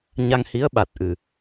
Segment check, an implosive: present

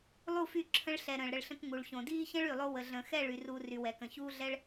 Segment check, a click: present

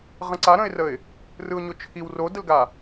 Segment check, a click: present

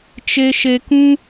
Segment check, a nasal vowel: present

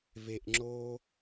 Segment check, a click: present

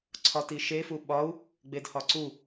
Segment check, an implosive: present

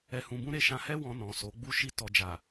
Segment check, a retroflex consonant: absent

